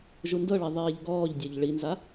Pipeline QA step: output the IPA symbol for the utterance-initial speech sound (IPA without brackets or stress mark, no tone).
ʒ